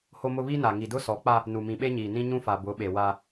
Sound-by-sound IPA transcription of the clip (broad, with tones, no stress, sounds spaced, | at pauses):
h o˦ m ʊ˦ β i˦ n a˨ ŋ i˨ d ʊ˦ s ɔ˨˦ k͡p a˦ | n u˨ m ĩ˨ ɓ e˦ ɲ iː˨ n ĩ˦ ɲ ũ˦ f a˨ b ʊ˨˦ ɓ e˨ w a˦